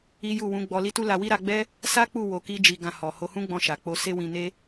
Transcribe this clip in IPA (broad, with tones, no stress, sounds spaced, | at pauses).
i˦ j u˦˨ w ũ˨˦ ɡ͡b ɔ˧ l i˦ t u˦ l a˧ w i˦ ɾ a˧ ɡ͡b ɛ˦ | s a˦ k͡p u˦˨ w o˧ k i˦ d͡ʒ i˧ ɡ ã˧ h ɔ˨ h o˧ h ũ˦ ɡ͡b ɔ̃˧ ʃ a˨ k͡p o˧ s e˦ w ĩ˧ n e˦